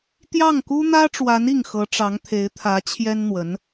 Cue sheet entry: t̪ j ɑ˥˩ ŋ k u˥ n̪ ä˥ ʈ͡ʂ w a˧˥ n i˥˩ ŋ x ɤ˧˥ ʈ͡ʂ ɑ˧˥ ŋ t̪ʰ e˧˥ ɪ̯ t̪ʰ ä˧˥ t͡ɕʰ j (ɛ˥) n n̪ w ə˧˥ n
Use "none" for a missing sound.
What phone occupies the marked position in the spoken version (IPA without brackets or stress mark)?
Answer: ɛ˥